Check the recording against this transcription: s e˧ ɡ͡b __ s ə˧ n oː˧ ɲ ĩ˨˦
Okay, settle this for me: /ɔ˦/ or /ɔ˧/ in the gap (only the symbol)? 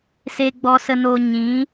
ɔ˧